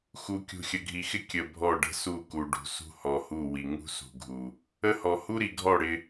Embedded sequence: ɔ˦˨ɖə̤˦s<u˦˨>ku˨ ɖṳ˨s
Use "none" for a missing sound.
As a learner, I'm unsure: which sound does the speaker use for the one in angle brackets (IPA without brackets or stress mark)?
u˦˨